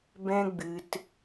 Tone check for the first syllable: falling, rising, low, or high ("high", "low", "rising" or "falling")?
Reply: high